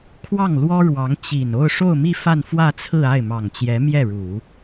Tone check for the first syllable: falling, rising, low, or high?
falling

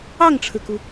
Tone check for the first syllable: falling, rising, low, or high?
falling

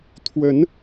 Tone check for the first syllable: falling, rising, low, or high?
rising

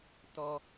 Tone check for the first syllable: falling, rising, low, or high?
high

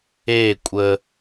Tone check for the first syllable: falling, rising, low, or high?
falling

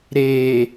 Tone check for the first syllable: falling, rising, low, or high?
low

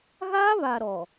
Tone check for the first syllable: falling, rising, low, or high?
high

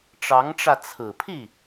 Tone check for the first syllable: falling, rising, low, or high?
rising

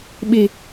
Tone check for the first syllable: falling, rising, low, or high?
low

